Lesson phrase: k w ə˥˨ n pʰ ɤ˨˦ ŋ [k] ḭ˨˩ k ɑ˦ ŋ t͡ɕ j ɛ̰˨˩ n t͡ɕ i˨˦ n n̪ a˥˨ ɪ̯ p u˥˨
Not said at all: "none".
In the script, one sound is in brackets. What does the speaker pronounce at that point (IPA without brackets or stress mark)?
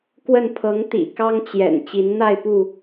t̪